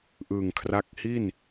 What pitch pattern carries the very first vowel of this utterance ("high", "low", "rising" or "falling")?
low